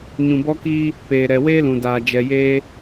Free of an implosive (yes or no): yes